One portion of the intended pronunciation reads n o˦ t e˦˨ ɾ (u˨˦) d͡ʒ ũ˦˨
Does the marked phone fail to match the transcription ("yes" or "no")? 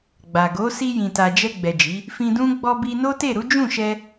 no